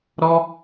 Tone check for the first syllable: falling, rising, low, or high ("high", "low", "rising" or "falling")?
high